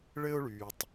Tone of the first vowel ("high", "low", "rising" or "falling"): high